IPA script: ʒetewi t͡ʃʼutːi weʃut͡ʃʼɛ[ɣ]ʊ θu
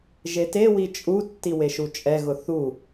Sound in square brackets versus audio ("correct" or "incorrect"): correct